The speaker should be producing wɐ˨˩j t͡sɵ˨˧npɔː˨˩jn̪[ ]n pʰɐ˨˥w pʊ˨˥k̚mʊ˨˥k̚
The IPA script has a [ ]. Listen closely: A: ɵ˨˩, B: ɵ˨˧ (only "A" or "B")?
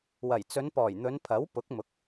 B